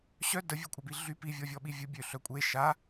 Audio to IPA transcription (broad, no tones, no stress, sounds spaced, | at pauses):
ɕ œ d ə vʲ ø kʷʼ a b i ɮ y p i vʲ ɔ vʲ ɔ ɓ i vʲ ə bʲ ø ɬ œ kʷʼ e ʃ a